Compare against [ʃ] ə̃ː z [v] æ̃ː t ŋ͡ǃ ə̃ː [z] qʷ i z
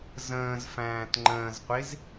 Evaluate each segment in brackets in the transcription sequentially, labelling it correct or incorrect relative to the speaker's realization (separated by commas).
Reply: incorrect, incorrect, correct